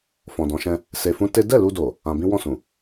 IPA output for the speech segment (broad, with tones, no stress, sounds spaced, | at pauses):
f ɔ̃˨ d ɔ̃˨˦ ʃ ɛ̃˧ | s e˧ f ũ˦ t e˦ d ɛ˦˨ l u˧ d o˨ | ã˧ b ĩ˦ w ɔ̃˦˨ s ũ˨